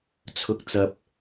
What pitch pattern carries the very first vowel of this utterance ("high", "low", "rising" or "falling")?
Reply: rising